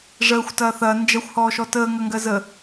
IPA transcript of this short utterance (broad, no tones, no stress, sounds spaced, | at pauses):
ʐ əː xʷ t ɐː θ ɐː n d͡ʒ ɐ xʷ h ɔː ʃ ɔ t əː ŋ ɐ ŋ ɡ ɜ z ə